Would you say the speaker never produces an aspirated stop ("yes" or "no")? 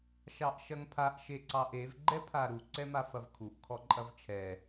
no